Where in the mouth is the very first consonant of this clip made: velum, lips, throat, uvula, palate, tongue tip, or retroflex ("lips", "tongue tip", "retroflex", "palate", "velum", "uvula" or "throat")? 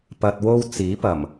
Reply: lips